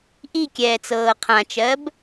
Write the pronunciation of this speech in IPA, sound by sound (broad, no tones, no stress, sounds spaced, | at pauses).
ʔ i kʲ ɛː t͡s ɤː qʰ ã t͡ʃ ɜ b